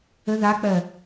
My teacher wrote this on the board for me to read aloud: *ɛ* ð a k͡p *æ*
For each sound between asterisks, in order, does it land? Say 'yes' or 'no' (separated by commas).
no, no